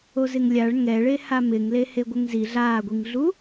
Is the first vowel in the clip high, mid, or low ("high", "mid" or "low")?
mid